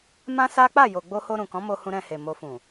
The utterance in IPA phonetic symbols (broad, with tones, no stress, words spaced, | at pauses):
mã˦sa˦ k͡pa˦˨jo˨ ɡ͡bo˧ho˧ ɾũ˨ kɔ̃˨˦mo˧hũ˧ ɾɛ̃˧he˨mo˧ fũ˨